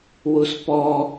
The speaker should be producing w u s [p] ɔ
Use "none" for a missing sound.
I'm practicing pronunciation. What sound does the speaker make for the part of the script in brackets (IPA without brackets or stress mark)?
p